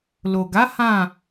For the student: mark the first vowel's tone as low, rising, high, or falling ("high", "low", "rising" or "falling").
low